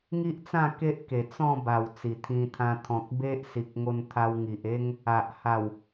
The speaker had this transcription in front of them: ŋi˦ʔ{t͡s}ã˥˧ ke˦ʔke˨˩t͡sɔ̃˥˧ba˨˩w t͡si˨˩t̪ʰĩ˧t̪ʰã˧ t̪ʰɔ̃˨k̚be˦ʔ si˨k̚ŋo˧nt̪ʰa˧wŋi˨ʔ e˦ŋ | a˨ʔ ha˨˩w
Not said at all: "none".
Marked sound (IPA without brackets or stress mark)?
t͡s